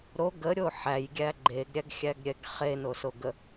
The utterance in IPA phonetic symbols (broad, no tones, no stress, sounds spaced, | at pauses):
ɾ o ɡ ə ɾʲ o ħ æ j ɡʲ æ ɡ͡ǃ e ɡ ɾʲ æ ɡ xʲ æ ɡ ɾʲ ɛ ɡ χ e n o s o ɡ ə